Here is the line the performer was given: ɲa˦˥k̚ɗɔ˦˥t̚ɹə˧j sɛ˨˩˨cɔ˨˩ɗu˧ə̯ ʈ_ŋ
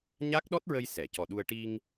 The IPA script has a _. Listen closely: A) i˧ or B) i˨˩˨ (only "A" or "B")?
A